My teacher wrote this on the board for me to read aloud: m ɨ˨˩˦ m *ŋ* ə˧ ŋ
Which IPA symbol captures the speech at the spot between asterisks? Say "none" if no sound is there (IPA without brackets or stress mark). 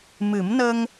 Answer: n